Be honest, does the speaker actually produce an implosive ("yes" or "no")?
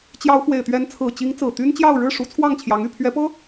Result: no